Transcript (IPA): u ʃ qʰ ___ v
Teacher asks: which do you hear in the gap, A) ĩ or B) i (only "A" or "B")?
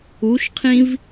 A